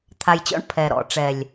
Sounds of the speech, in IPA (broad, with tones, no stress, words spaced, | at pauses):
t̪ʰa˨jt͡ɕɔ̰˦ɳ pʰɛ˨ ɾɔ̰˨ʈ͡ʂɛ˨lʲ